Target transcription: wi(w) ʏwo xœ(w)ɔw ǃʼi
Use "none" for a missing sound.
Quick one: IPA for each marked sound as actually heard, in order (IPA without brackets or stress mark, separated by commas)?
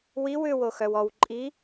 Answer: w, w